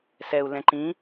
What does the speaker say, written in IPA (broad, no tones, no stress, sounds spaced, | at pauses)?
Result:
s ɛ u̯ l ɛ̃ ǃ ĩ